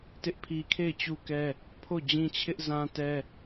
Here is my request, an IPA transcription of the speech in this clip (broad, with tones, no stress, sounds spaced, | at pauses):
t ɪ˦ ʔ pʰ i˦ kʰ e˦˨ ɪ̯ t͡ɕ u˦ k ɛ˦ | pʰ o˦˨ d͡ʑ ĩ˦ t͡ɕʰ ɪ˦ ʔ z ã˦ t ɛ˦